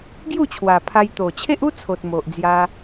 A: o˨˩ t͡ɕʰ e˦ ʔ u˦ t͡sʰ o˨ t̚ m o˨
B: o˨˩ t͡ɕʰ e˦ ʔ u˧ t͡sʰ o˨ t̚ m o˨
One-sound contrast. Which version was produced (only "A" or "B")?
A